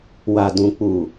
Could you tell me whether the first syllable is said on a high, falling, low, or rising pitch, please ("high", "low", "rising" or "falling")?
low